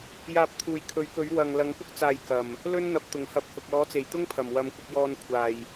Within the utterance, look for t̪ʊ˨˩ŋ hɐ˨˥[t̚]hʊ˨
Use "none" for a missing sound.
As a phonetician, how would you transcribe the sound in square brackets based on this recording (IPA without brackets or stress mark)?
p̚